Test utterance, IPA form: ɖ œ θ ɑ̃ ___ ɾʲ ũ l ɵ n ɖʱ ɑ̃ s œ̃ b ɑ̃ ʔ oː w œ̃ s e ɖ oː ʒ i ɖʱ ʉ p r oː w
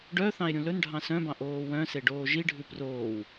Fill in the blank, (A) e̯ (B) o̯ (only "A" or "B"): A